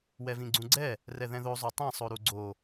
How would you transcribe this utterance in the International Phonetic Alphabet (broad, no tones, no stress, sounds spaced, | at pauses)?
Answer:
w ɛ v ĩ ɡ͡ǀ ũ ɡ͡ǀ ɛ | r ɛ ð ɛ̃ ð o zˤ o tˤ ɛ̃ sˤ o ɾ u ɡ͡ǀ o